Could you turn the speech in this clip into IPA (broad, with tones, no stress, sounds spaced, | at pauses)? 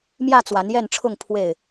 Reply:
m j ä˥˨ t͡s w a˨˦ n j ɛ˥˨ n ʈ͡ʂʰ ʊ˥˨ ŋ pʰ w e˥˨ ɪ̯